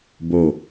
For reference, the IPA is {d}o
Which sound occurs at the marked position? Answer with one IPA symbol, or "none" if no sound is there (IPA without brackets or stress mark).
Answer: b